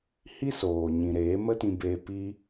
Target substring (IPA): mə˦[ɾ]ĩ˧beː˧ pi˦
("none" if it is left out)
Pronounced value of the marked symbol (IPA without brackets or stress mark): t